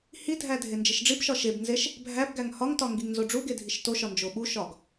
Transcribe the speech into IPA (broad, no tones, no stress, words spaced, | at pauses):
hidʱæ dʱend͡ʒiʃɖ͡ʐibʃɒ ʃebnzeʃ | bʱæbɡæŋ hɒŋtɒ ŋɡiŋnzoɖ͡ʐuɡe dʱiʃtoʃɒ nd͡ʒoɓuʃɒɡ